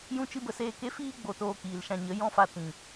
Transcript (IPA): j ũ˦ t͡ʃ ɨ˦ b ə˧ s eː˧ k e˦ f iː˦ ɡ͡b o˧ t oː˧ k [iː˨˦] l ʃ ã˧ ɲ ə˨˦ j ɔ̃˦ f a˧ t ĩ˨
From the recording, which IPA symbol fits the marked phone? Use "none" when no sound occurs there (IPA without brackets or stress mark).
iː˨